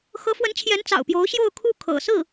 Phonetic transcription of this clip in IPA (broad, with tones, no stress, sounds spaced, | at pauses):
x ɤ˧˥ f w ə˧˥ n t͡ɕʰ j ɛ˧˥ n t͡s ɑ̰˨˩ ʊ̯ p j o˧˥ ʊ̯ ɕ j o˥˧ ʊ̯ kʰ u˥˩ kʰ ɤ̰˨˩ s ɹ̩˥˩